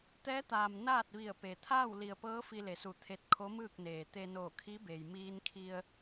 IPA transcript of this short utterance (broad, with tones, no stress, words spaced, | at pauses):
t̪ɛː˧˥t̪aː˩m naː˥˨t̚ʋi˧˩ə̯pe˩ t̪ʰaː˥˨wli˩ə̯pɤː˧˥ fi˧le˩su˧˩ t̪ʰe˧t̚kʰo˧˥mɯː˥˨k̚ neː˩ t̪e˧noː˧˩kʰi˧˥be˩j miː˧nkʰi˧ə̯